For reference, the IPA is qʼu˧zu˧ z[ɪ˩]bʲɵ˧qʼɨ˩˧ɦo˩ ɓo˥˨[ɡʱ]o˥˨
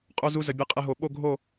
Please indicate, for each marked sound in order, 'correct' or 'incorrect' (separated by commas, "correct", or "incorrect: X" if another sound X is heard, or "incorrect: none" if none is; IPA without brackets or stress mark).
incorrect: ə˩, correct